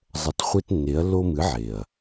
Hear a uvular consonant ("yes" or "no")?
yes